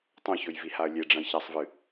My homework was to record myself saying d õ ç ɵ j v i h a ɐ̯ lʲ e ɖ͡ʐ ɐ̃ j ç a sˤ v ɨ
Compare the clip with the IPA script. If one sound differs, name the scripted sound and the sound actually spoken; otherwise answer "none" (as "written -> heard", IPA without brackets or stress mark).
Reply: d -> tˤ